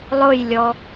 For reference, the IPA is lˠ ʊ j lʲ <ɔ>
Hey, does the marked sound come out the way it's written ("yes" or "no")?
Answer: yes